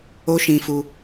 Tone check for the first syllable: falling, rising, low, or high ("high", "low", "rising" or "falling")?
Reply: high